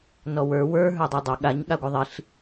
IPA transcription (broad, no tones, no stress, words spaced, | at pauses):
nɔwə˞ wə˞ ɦə˞dˤə˞dˤø ɠaɲ ɠaɡʷɘðˤiɬ